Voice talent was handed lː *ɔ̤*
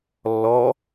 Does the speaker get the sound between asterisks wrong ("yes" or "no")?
yes